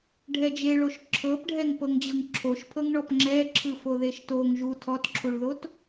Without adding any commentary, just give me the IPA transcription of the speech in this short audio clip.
ɖʱɛd͡ʒeɭoʃ ǁʰɤpɖʱɛŋ pɤŋd͡ʑɤŋǁʰoʃpʰɤŋ ɳɔpŋ͡ǁɛǁʰɯ foðeʃtoŋ ʒu tʰɔtǁʰuɭðot

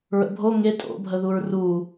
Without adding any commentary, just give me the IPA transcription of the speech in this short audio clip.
ɹə̰bʱo ŋe tʼo̰bʱəðuɹ ru

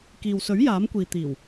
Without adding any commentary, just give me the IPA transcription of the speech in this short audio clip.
kiː˨wsɵ˨˥ɥ jaː˨˥mkʷiː˨ t̪iː˨˩w

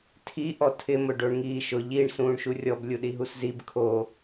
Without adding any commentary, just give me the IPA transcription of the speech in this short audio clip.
tʰi ʔɔtʰɪ mʊɖoɳŋiːʃʊʎ iɳ sũːɳʃurʲɔb lʲuɗiɦuszib kʰo

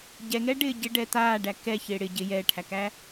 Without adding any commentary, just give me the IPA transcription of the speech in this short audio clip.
ɟɛŋɛɖɪː ɟɪɖɛ t̪aːɖæ kɛçɪː ɽɪ ɟɪ jɛːʈʰækæ

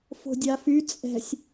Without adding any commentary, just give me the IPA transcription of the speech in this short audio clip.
fo̤dʲafy t͡sʼɛ̤sʲ

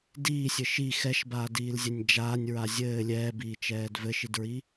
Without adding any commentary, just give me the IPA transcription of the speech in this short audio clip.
diːsʲɘ ʃi xɛʃbaːdiːlzʲɛnʲ d͡ʒaːnʲɹa zʲɘː lʲɛːbiːt͡ʃɛːd vɘʃidɹi

